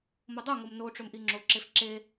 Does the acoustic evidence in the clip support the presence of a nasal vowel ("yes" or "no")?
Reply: no